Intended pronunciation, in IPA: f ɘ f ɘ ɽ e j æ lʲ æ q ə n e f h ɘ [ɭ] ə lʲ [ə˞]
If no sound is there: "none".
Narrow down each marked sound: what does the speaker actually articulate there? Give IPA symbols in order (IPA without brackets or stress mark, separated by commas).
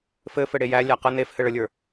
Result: ɭ, ə˞